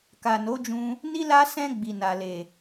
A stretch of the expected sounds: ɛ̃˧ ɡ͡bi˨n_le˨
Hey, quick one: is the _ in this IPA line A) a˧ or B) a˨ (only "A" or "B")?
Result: B